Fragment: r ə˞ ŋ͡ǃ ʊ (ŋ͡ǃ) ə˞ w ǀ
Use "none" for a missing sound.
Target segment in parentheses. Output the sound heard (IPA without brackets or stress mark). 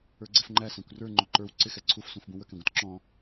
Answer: ǃ